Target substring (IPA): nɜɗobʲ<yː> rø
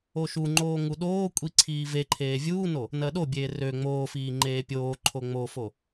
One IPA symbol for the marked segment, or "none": eː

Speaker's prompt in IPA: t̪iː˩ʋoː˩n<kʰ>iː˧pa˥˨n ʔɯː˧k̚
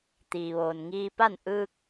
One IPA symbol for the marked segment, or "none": ŋ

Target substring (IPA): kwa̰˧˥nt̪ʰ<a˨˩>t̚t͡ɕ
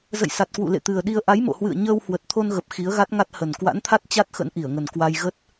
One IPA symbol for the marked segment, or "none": a˦˥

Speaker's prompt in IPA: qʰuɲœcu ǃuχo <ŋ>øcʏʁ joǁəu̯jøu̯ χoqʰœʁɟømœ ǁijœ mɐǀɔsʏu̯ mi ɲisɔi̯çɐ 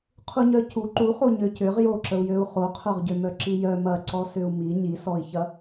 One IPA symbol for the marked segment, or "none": ɲ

